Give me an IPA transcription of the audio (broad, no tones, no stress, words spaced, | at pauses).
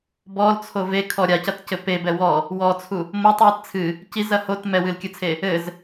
bɔlt͡sʰo vekʰɔ ɾʲacɐtcɘ pebɛ wɔ | wɔt͡sʰu | motˤwit t͡sʰɨ | cizɐ hot mɛwɨlkʲɨt͡sʰe | ɘz